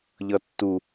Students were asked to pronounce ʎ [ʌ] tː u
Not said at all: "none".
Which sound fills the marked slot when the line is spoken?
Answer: ʌ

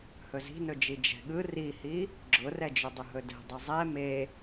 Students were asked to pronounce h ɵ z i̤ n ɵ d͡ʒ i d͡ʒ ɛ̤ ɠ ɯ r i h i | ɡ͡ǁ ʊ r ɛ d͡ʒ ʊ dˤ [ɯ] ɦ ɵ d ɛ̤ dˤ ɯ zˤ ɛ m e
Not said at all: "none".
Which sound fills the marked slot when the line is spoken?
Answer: ʊ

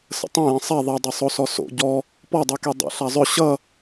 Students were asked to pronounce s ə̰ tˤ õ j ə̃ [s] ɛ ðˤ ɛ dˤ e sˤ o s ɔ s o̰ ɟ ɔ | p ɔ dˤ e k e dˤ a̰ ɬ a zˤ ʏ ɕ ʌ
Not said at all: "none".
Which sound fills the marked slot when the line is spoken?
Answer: sˤ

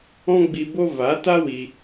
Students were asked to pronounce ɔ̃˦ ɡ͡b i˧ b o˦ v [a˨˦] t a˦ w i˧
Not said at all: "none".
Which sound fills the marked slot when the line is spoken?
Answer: a˨˦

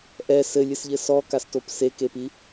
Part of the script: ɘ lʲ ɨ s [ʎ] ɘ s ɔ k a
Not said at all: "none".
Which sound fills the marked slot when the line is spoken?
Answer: ʎ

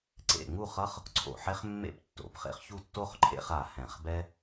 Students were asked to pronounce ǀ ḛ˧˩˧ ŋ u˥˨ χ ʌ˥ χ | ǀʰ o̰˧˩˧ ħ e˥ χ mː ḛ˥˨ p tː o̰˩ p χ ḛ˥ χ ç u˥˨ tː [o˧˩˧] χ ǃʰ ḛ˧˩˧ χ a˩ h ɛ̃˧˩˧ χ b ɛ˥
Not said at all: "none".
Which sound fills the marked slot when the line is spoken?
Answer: o˥˨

